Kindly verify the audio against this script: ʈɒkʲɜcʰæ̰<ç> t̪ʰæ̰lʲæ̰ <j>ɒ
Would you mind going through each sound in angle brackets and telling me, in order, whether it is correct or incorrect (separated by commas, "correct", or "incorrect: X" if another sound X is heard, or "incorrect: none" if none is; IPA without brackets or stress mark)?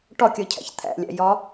correct, correct